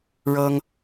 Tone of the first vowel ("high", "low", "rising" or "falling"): high